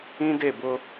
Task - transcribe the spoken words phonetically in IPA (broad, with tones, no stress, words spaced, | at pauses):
ĩ˦de˦˨bʊ˦